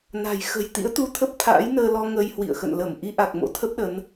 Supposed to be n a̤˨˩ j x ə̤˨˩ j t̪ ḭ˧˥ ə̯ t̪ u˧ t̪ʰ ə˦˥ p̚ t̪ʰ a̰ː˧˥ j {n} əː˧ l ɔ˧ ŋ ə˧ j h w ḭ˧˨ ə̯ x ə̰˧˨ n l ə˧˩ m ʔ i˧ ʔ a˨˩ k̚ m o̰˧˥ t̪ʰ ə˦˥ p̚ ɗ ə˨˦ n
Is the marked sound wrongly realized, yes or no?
no